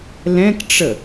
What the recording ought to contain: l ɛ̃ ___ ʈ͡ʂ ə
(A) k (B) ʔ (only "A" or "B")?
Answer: A